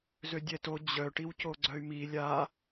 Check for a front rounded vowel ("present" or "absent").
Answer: present